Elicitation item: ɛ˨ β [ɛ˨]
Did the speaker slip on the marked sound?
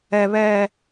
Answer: no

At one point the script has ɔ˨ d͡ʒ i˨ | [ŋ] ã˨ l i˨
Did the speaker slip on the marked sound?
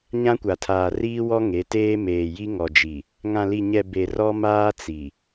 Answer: no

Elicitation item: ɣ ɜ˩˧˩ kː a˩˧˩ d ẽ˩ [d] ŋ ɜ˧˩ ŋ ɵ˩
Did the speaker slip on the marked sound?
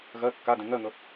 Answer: yes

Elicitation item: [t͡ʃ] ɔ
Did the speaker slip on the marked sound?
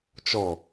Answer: no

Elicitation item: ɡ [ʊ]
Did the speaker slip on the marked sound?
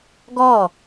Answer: yes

